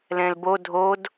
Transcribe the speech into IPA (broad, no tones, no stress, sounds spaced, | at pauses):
l ɛ̃ l b o dʱ o d